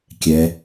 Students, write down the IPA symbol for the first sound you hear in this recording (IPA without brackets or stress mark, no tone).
kʲ